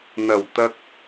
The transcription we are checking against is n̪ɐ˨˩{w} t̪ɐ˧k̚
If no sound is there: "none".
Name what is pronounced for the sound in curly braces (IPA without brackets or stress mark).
w